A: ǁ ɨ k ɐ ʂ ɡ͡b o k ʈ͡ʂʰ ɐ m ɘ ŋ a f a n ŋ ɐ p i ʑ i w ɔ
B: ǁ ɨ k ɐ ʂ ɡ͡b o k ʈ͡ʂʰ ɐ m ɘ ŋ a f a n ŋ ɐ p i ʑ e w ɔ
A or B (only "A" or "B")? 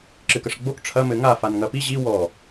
A